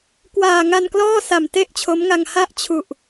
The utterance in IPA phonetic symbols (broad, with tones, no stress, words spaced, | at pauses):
kwaː˨˩ŋa˧nklɔː˥˩ sa˨˩mte˥˩ʔt͡ɕʰo˦˥mŋa˧ŋ ha˥˩ʔt͡ɕʰu˨˩ʔ